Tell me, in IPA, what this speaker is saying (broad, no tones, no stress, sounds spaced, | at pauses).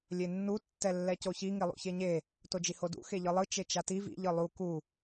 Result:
lʲ e nː u tː ɛ lː ɛ c o ç i ŋ i lˠ ṵ ç e ɲ e | t o d͡ʒ i h o d ṵ x e ʎ ɯ lˠ ɯ t͡ʃ e t͡ʃ a t i v ḭ ʎ ɯ lˠ u k u